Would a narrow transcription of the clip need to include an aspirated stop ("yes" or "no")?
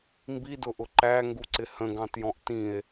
no